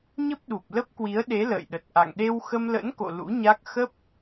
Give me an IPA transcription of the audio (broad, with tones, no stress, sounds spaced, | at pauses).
ɲ ə˦˥ p̚ ɗ u˨˩ p̚ l ə˦˥ p̚ k w i˨˦ ə̯ ɗ e˨˦ l ə̰ː˧˨ j ɗ ə˨˩ t̚ ʔ a̰˧˨ ŋ ɗ e˧ w x ə˧ m l ə̰˧˥ n k o̰˧˨ l ṵ˧˥ ɲ a˦˥ k̚ x ə˦˥ p̚